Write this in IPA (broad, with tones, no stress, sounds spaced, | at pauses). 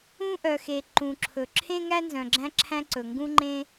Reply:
ũ˥ ʔ œ˩ x e˩ ǃ ũ˩ ǁʰ ɵ˩ ǁʰ ẽ˥ ŋ æ˥ n z œ̃˩ ɡ͡ǁ æ̃˥ ǁʰ æ̃˥ ǀ ɵ˩ ŋ ɡ ũ˥ ŋ͡ǃ ẽ˥